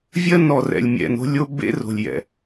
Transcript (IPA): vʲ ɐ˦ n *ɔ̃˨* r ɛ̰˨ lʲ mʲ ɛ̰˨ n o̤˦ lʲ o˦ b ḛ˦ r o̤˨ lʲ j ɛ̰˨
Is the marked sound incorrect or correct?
incorrect: ɔ˨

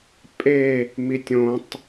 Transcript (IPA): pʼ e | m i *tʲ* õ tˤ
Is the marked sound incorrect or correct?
correct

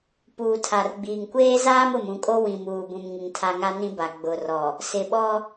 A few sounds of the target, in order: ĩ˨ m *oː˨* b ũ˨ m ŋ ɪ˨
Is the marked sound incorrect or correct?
incorrect: uː˨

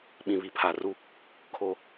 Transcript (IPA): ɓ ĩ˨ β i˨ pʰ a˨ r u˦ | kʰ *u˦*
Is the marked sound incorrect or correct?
incorrect: o˦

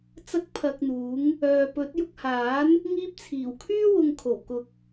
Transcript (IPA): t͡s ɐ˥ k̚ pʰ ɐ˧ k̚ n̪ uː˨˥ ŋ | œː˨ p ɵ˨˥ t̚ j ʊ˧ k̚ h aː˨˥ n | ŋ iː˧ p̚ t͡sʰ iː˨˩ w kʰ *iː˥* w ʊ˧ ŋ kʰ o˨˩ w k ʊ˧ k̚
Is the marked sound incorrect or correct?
incorrect: yː˥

